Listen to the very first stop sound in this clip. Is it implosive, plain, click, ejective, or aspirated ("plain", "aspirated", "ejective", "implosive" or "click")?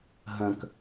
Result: plain